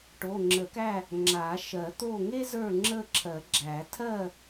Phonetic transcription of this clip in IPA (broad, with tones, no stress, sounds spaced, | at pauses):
ʈ o˩˧˩ ŋ͡ǁ ə˨˩˦ k æ˥˨ | ŋ͡ǁ a˨˩˦ ʃ ɜ˨˩˦ t̪ o˥˨ ŋ e˥ z ə˞˥˨ ŋ͡ǁ ə˥˨ ǁʰ ɜ˨˩˦ ɡ͡ǁ æ˨˩˦ tʰ ɜ˥˨